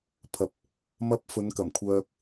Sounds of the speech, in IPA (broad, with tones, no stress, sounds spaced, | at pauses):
pʰ ɐ˨ p̚ | m ɐ˧ p̚ f ɵ˨˧ n k ɐ˨˩ m kʷʰ œː˧ k̚